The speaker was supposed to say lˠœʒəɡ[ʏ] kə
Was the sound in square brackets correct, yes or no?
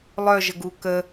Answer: no